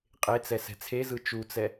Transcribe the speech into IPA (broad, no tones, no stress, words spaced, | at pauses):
qʼet͡sɛ sɛ̤t͡sʰezɯ t͡ʃut͡sɛ